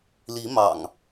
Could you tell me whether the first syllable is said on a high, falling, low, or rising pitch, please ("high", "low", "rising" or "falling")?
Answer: rising